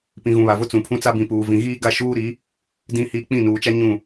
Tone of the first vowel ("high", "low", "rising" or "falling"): low